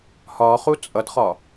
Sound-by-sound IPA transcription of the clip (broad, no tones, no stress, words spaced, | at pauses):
hɒ χut͡sʼʌdχɒ